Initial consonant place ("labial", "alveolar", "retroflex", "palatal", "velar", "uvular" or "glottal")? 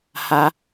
glottal